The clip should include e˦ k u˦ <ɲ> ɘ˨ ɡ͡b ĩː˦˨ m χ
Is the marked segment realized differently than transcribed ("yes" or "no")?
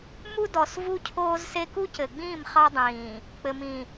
yes